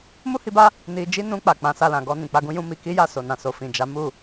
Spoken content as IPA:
m u˦ h i˧ b a˦ | n i˧ d͡ʒ i˦ n ũ˧ k͡p a˨ k͡p ã˨˦ s a˧ l ã˨ ɡ ɔ˧ n ĩ˨ k͡p a˧ ɡ ũ˦ j ũ˦ m i˧ k i˦ j a˦˨ s o˨ n ã˨ s o˨ f ĩ˨ d͡ʒ a˨˦ m u˦˨

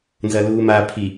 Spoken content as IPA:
n z ɐ l uː m a pʰ i

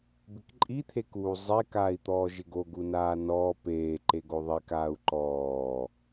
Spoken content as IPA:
b ɪ k ǃʼ i t̪ʰ e k uː zˤ e k aː i̯ t̪ ɔː ʒ ɪ ɡ o ɡ u n aː n ɔː p eː ǃ e ɡ o ðˤ i k aː u̯ ǃ ɔː

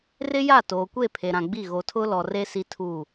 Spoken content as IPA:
r ɪ˦ j a˦˨ t oː˨ kʷ e˦˨ pʰ e˨ ɾ ã˨ ɡ͡b i˦˨ ɣ o˨ tʰ ʊ˦ l ɔ˨ r e˦ s i˦ tʰ u˦˨

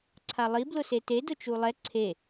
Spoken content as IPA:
ǀʰ a lˠ i b l ʊ s e t e d ʊ t͡ʃ u lˠ ɛ ǀʰ e

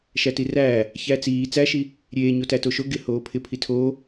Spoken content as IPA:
ʃ æ t i r æː | ç æ t͡s iː t͡s æ ʃ i | ɾʲ eː ɲ o t æ t o ʃ o ɡ ɪ h oː pʰ ɪ pʰ i tʰ oː

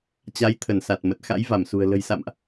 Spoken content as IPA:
t͡ɕ a˨˦ j t̪ʰ ə˧˩ n s a˨˩ t̚ m ə˨˩ t̚ x a̰˧˥ j v a˧˩ m s ṳ˨˩ ə̯ l ə̤˨˩ j s a̰˧˨ m ʔ

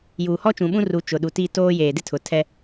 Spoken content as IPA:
j uː˨ h ɔ˦ t͡ʃ ũ˨ ɓ ũ˦ r u˨˦ t͡ʃ ʊ˨ ɗ u˨ t i˦˨ t oː˦ j eː˨ d ɪ˦ tʰ ʊ˨ tʰ ɛ˦

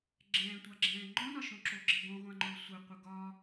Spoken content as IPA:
ɡ͡ǁ ɛ̃ː tʷ a ɡ͡ǁ ɛ̃ː ŋ͡ǃ ɔ̃ n ɒ ʃ õ ǁ o ɡ͡ǁ ɘ ɡ õ ʁʷ ã ŋ͡ǃ ʊː sʷ ɘ qʷ ɘ ɡ ɒ

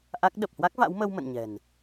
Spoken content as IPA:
ʔ a˦˥ k̚ ɗ ə˨˩ p̚ h w a˦˥ k̚ v a̰˧˥ w m ə˧ w m ə̰˧˨ n ɲ ɛ̤˨˩ n

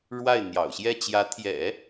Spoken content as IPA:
ɻ w a˥˩ ɪ̯ n̪ j ɑ̰˨˩ ʊ̯ ɕ j ɛ˥˩ t͡ɕ j ä˧˥ t̪ʰ j ɛ̰˨˩˦

